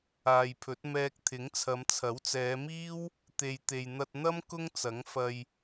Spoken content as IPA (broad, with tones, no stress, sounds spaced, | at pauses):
aː˨ j pʰ ɵ˨˥ t̚ m ɛː˧ k̚ t̪ʰ ɪ˨˥ ŋ t͡sʰ ɐ˨˧ m t͡sʰ ɐ˨˥ w t͡s ɛː˨˧ m iː˥ w | t̪ e˨ j t̪ e˨ j n̪ ɐ˧ t̚ n̪ ɐ˥ m k ʊ˥ ŋ t͡s ɐ˨˥ ŋ f ɐ˧ j